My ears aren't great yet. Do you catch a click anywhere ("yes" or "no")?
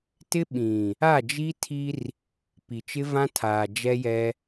no